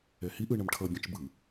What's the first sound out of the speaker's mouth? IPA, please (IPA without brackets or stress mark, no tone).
ɛ